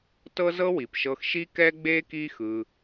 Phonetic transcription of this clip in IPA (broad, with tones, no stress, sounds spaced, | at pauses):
t ɤ˦ z ɤ˦ w i˨ p ʃ ɤ˧ x ʃ i˦ k ɛ˦ ɡ͡b e˦ k i˦ x ɯ˧